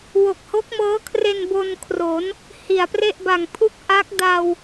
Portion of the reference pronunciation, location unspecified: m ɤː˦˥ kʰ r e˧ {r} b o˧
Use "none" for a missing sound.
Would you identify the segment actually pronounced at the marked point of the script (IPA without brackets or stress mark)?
n